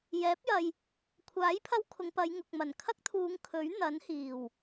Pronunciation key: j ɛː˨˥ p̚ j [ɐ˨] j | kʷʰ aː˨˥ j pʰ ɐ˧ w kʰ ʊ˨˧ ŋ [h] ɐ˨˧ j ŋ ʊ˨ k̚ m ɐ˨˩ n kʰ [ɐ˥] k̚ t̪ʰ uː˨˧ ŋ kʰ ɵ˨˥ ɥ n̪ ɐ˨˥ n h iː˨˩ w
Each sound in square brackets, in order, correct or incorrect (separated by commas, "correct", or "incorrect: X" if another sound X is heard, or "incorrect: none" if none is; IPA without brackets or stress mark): correct, incorrect: p, correct